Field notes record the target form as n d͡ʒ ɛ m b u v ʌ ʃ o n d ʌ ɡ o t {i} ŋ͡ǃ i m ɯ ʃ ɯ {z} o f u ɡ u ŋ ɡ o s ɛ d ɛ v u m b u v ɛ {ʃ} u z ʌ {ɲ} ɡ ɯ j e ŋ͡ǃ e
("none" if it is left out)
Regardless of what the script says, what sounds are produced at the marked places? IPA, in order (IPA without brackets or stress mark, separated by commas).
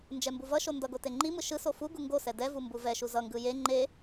e, s, ʃ, ŋ